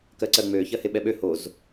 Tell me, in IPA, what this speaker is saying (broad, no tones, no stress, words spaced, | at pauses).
kɜǀɜŋ͡mø çɜheɓɛɓø hoz